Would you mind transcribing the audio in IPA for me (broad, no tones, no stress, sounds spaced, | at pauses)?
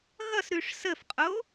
ɣ ʌ s ɾ ʉ ʂ s ə f qʼ o